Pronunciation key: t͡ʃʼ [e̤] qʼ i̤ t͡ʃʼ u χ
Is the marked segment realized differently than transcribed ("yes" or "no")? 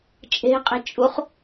no